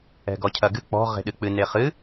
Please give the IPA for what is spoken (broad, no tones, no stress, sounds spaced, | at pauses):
ɛ̤ ɡ ɔ cʰ ɐ ɡ ɨ k͡p ɔ̤ ʁ e̤ ɗ ɨ k͡p ɨ n e χ ɨ